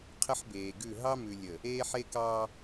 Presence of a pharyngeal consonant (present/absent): present